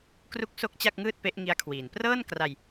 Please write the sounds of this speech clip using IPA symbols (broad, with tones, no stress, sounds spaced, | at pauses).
k r u˥˩ k̚ s o˥˩ k̚ t͡ɕ a˥˩ k̚ ŋ ɯː˥˩ t̚ p e˦˥ ʔ ŋ i˦˥ a̯ kʰ w iː˩˦ n p r ɤː˥˩ n k r a˧ j